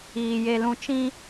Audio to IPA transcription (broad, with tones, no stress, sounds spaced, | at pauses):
iː˨ j e˨ l ũ˨ t͡ʃ ĩ˦